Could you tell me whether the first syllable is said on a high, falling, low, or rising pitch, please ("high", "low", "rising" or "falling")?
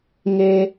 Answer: low